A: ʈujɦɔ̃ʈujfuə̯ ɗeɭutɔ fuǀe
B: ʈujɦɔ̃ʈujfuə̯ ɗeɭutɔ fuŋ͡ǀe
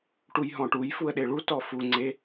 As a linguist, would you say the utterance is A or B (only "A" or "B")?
B